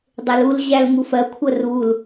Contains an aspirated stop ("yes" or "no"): yes